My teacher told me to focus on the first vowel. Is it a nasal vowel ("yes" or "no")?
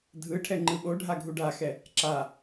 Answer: no